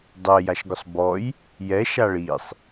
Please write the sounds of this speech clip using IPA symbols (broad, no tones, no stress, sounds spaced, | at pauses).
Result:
dˤ ɛ j a ʃ ɡ ʊ sˤ b ɔ j | j ɛ ʃ a ɭ i sˤ